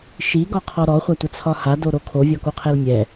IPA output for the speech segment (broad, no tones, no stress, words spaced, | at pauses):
ʃiɡɒqʰɔ ɾɔχʷatʷət͡sʰɒ hadoɾo kʰovʲɔkoqʰɛl mʲɛ